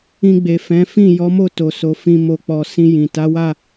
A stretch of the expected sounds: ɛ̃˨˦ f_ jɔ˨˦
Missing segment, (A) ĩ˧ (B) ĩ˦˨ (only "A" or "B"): B